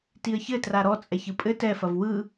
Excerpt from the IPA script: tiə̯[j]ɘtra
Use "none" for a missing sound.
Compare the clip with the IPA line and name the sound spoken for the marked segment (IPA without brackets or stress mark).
ç